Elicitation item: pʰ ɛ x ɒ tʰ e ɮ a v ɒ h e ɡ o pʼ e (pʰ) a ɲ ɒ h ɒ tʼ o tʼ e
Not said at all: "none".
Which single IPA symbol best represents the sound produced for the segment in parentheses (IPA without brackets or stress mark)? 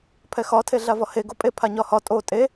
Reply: pʰ